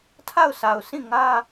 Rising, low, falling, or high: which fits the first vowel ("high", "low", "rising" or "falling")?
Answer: falling